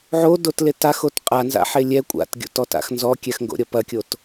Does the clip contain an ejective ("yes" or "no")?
yes